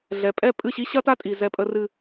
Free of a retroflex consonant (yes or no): yes